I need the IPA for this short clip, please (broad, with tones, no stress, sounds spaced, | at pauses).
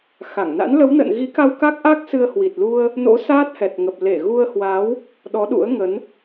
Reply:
x a˧˩ ŋ n a̰˧˥ n l ə˨˦ w n ə̰ː˧˨ n ɣ i˨˦ k a˧ w k a˦˥ k̚ ʔ a˦˥ k̚ s ɨ˧ ə̯ h w i˨˩ t̚ l u˧ ə̯ | n o̰˧˥ s aː˦˥ t̚ h ɛ˨˩ t̚ ŋ ə˨˩ p̚ l e˧˩ ɣ u˧ ə̯ h w a˨˦ w | ɗ ɔ˨˦ ɗ ṵ˧˥ ə̯ ŋ ə˨˦ n